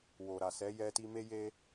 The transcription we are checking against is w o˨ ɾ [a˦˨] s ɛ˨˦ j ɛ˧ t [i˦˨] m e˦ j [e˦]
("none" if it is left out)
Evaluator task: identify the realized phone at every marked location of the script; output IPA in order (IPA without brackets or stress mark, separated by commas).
a˨, i˧, e˦